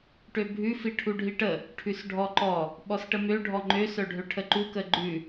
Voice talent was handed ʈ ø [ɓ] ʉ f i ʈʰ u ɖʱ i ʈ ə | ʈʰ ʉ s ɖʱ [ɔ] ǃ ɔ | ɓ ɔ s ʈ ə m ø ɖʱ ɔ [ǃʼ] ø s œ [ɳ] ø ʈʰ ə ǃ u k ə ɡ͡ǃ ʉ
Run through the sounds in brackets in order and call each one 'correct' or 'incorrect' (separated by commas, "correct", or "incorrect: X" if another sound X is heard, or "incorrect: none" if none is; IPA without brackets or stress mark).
incorrect: bʱ, correct, incorrect: ŋ͡ǃ, incorrect: ɖʱ